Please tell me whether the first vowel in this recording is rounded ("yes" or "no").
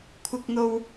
no